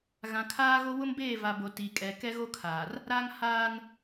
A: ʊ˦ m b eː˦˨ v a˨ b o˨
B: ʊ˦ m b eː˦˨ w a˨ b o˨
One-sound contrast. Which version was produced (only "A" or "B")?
A